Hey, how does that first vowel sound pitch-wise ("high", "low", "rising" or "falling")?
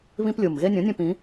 high